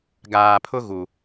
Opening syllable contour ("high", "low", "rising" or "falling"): low